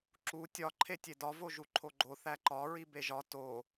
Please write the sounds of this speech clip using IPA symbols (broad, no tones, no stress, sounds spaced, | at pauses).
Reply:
ǁ u tʲ ɒ ǃʰ e tʲ e d ɒ v o ʒ u ǃʰ o ɡ͡ǃ o θ æ ǃ ɒ ɹ i b e ʒ ɒ t o